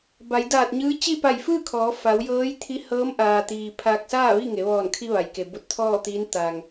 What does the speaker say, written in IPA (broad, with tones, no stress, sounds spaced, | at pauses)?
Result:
b a˩˧ j d aː˧˩ t̚ ɲ ɯː˧˥ t͡ɕ i˥˨ p a˧˩ j f ɯː˥˨ kʰ ɔː˩˧ f a˩˧ w j ɤː˧˥ j t̪ʰ i˧˥ h ɤː˧˥ m ʔ aː˩ t̪ iː˩ pʰ aː˧ k̚ s aː˥˨ ʋ i˥˨ ŋ e˩˧ ʋ ɔː˧˩ n kʰ i˧ ʋ a˩ j k e˩ b o˧˥ t̚ t̪ʰ ɔː˥˨ t̪ iː˧˥ n t̪ aː˩ ŋ